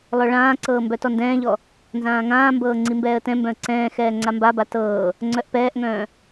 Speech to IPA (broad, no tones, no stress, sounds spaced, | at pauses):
lˠ œ ɭ ãː ǀ ɤː m b œ t ɔ n d ɛ̃ː ʎ ɔ | n z ãː ŋ ãː m b ɤː ŋ͡ǀ i m b ɛː ə̯ t ɛ̃ m b œ̃ ə̯ ǀ ɛ̃ː x ɛː ŋ͡ǀ a m b a b a t ɤː | ŋ͡ǀ œ ʔ p ɛː ʔ ŋ œ̃ː